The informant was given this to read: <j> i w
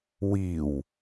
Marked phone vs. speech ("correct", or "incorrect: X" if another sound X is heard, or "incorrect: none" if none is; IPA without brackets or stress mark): incorrect: w